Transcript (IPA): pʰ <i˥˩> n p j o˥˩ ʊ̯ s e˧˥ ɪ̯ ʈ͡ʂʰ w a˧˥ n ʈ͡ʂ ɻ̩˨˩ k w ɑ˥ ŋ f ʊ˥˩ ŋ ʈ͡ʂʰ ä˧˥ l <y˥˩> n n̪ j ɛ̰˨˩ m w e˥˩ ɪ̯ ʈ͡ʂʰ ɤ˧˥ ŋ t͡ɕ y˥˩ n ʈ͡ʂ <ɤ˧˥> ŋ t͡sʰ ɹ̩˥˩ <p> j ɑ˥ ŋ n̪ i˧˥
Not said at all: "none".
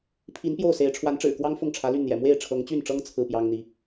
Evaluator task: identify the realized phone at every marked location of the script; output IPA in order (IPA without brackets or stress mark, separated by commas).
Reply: i˧˥, y˥˩, ɤ˥, p